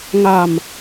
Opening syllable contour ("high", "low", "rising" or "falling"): low